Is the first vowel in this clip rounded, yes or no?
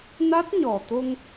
no